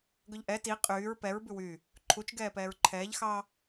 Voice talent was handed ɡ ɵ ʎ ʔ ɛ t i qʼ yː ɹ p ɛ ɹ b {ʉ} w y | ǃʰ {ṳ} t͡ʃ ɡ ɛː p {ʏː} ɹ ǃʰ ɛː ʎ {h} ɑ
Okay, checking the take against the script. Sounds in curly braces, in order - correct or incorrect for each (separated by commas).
correct, incorrect, incorrect, incorrect